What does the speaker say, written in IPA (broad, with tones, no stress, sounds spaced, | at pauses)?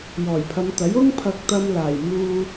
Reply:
j ɔː˨˩ j pʰ ɐ˨˧ m t̪ ɐ˨˥ j ʊ˥ ŋ pʰ ɐ˧ k̚ t̪ ɐ˧ m l aː˨˩ j m uː˧